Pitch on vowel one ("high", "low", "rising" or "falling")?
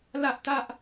high